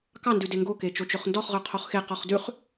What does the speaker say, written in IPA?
k ɑ n d ʉ d e ŋ ɡ o k e t͡ʃ o t͡ʃ ɵ χ n d ɔ χ ʁ œ qʰ o χ x e q ɔ χ d ʉ χ

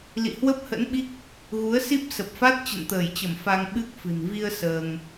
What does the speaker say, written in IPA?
l ḭ˧˨ h w ə˦˥ p̚ h ə̰˧˥ n ɓ i˦˥ k̚ | ɣ u˨˦ ə̯ s i˦˥ p̚ s ə˨˩ p̚ f a˦˥ t̚ t͡ɕ ə̰˧˨ n t̪ əː˧˩ j t͡ɕ ə˧˩ m f a˧ ŋ ɓ ɨ˦˥ k̚ f ɨ̤˨˩ n v i˧ ə̯ s əː˧ ŋ

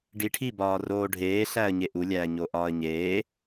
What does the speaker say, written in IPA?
ɖ i ʈʰ i b ɒː r oː ɖʱ eː ɬ æ ə̯ ɲ e ʔ u lʲ æː ɲ o ʔ ɒː ə̯ ɲ eː

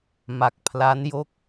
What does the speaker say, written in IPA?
m a˨˩ k̚ pʰ l a˦˥ n j o˥˩ k̚

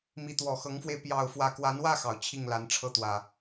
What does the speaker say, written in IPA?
m i˨˦ t̪ w ɔ˨˩ x ɤ˨˦ ŋ f w e˧ ɪ̯ p j ɑ˥˨ ʊ̯ f w ä˥˨ k w a˨˦ n w ä˥˨ x ɑ˩ ʊ̯ t͡ɕʰ i˥˨ ŋ l a˨˦ n ʈ͡ʂʰ ɤ˥˨ t̪ w ä˨˩

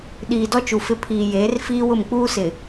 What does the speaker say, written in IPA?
ɗ iː˨ d ɔ˦ t͡ʃ u˨ f ɪ˦ pʰ iː˨ j eː˨˦ r f iː˦ w ʊ˦˨ m k͡p uː˦ s ɪ˨

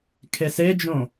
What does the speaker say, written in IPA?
kʰ e s e d͡ʒ õ

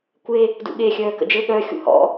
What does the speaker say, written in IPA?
kʷ e | d ṵ ɠ e xʲ œː k ə̰ d͡ʒ ɘ ɠ œ xʲ ṵ h ɔ̰

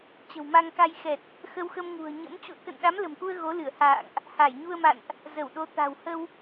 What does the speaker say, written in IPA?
t͡ɕ ə̤˨˩ w m a˧ ŋ k a˧ j x ɛ˨˩ t̚ | x ə˧ w x ə˧ m ŋ ṳ˨˩ ə̯ ɲ ə̰˧˥ m t͡ɕ ṵ˧˨ ə̯ k ə̰˧˨ n ɗ a˨˦ m l ə̤˨˩ m k u˧ ə̯ ɣ o˨˦ l ɨ˧˩ ə̯ h a̰ː˧˨ ŋ ʔ | h a˧˩ j ɲ u˧ ə̯ m a̰˧˨ n ʔ | z ə˧˩ w ɗ o˨˦ t̪ a̤˨˩ w h ə˧ w

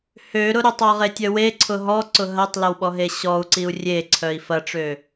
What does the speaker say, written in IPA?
h ø ɾ ʊ ɾ ʊ tˤ ɔ ʁ e tʲ œ w e ǀʰ ʊ ɦ ɔ ǀ ʊ ɦ ɐ tˤ l ɐ w ɓ ɔ ɦ e ɕ ɔ u̯ ǀ i u̯ rʲ e ǀʰ œ i̯ f ɐ ʈ͡ʂ ø

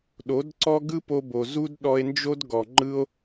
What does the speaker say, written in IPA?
ɗ o˨˦ d ǀ ɔ˦ ɡ ɯ˦ p o˧ b o˨ z u˦ d ɗ ɔ˧ e̯ n d͡ʒ o˦ d ɡ ɔ˨ ŋ͡ǃ ɯ˧ o̯

